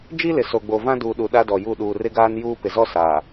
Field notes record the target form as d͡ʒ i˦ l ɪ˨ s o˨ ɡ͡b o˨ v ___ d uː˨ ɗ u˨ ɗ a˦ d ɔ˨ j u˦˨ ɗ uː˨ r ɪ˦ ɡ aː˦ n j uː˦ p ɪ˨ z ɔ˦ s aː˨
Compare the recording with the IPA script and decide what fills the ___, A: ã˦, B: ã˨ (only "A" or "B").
A